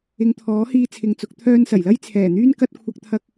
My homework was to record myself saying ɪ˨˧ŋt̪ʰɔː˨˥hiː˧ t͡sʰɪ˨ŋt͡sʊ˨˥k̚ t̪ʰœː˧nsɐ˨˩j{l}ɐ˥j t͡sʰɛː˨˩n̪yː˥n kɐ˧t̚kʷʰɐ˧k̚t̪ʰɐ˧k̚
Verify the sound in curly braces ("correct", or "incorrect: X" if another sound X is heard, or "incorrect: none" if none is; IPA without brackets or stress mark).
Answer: correct